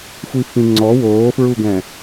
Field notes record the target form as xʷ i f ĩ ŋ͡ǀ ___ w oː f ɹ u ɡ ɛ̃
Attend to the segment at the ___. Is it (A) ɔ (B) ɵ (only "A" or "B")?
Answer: A